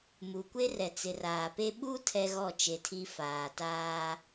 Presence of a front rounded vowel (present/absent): absent